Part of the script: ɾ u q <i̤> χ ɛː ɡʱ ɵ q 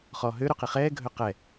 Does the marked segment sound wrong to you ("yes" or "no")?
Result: yes